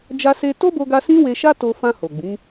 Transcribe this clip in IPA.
d͡ʒ a˧ s e˧ t o˦ b o˧ ɡ a˧ s ĩ˦ w e˧ ʃ a˦ t o˧ f ã˧ h o˨ ɡ͡b ĩ˨˦

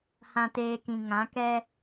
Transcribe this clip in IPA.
h ã˦ t eː˦ k ĩ˧ ŋ ã˨˦ k ɛ˦

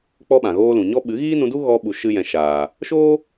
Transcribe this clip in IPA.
k͡p ɔ˦ ɓ ã˨ ɣ oː˦ l ũ˨ ɲ ɔ˦ ɓ ɨ˨˦ ɣ iː˦ n ũ˧ d u˦ ɣ ɔ˧ ɓ u˨ ʃ ɨ˦ j ɛ̃˧ ʃ aː˨ | ʃ oː˦

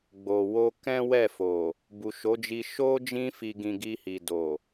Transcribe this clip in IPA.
ɡ͡b o˨ w o˧ k ɛ̃˦ w ɛ˦˨ f o˨ | b u˨ ʃ o˨˦ d͡ʒ i˧ ʃ o˦ d͡ʒ ĩ˧ f i˨ ɡ ĩ˨ ɡ i˧ h i˨ d o˨

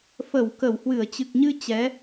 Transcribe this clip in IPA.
f ə˧˩ w k ə˧˩ w h w ɨ˧˩ ə̯ t͡ɕ ɨ˨˩ k̚ ɲ ɨ˧ t͡ɕ ɛ˨˦

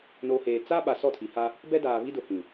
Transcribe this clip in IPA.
n o˨ h eː˨ t͡s a˦ ɓ a˨ s ɔ˦˨ tʰ i˨ h a˦ | b ɛ˦ d aː˨ β i˦ d ʊ˨ h ĩ˨

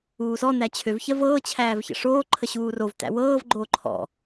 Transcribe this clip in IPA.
uː s ɔ n æ t͡ɕʰ ø v ç ɜ v ɤː t͡ɕʰ æː v ç ə̰ ʂ oː ǃʰ ə ɕ uː r o v t æ̰ w ɤː v ɡ͡ǃ oː ǃʰ ɔ̰

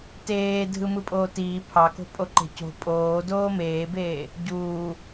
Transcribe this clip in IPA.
t eː dʱ ɯ m ɯ pʼ oː t iː pʰ ɑ k o̤ pʼ o ǃ e̤ c o̤ pʼ oː d oː m eː b eː | ɟ uː

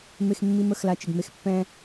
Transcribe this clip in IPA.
m e˧ x mː i˧ m ə˦˨ x l a˧ t͡ʃ ɪ˨ ɡ m e˦ x pː ɛ̃˧

